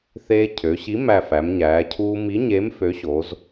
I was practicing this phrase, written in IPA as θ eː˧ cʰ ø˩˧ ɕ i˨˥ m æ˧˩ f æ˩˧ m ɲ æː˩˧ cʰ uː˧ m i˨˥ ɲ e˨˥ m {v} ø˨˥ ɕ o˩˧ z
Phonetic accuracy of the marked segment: incorrect: f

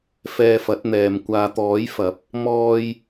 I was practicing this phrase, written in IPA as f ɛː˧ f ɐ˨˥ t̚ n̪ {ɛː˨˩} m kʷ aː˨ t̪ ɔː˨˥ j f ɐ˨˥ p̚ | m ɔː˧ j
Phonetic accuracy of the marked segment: incorrect: ɛː˨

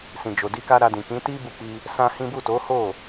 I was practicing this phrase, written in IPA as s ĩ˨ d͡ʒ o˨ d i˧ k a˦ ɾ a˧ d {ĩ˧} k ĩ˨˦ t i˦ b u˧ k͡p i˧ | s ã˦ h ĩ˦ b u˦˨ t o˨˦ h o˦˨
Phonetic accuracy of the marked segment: incorrect: ĩ˨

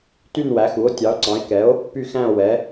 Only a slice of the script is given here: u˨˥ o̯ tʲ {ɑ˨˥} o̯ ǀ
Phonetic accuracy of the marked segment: correct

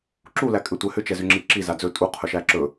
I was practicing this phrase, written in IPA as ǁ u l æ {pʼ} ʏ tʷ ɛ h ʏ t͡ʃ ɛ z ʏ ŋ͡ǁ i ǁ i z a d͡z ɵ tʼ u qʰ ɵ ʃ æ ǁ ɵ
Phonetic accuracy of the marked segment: incorrect: kʼ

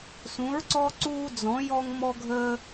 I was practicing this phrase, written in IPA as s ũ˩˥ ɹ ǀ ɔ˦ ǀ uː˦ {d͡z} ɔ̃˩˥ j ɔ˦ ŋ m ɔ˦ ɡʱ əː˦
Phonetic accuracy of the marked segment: correct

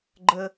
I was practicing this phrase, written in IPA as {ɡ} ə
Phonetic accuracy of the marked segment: incorrect: ɡ͡ǃ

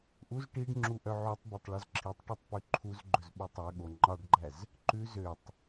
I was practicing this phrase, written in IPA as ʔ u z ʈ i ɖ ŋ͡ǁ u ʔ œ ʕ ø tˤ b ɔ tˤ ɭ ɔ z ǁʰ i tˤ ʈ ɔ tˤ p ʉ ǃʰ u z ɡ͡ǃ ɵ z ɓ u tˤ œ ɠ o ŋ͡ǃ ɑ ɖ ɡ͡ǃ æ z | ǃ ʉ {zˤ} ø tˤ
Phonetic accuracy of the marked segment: incorrect: z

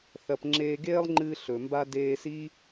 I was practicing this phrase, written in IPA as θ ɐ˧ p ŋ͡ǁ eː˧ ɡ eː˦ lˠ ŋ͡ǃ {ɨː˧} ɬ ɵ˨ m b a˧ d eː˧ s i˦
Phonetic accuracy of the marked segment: correct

